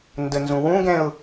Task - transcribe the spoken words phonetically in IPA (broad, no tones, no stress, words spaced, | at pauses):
ndənzũ wũɡɛ̃ʊ̯